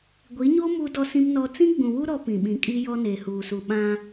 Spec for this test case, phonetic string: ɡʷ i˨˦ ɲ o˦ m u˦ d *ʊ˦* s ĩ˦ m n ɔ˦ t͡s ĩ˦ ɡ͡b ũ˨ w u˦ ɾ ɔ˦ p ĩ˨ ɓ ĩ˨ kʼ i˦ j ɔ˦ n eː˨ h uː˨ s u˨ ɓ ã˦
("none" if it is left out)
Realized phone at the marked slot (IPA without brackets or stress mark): ɔ˦